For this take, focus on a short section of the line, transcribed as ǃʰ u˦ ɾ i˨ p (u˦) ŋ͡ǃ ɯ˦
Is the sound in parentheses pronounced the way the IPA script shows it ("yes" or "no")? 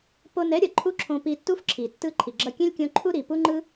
yes